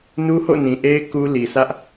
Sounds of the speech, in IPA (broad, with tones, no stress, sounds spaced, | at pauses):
n u˦ h o̰˦˨ n ĩ˨ ʔ e˦ ɪ̯ k u˦ l i˨ s ä˦ ʔ